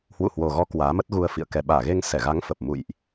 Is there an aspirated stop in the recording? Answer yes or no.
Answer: no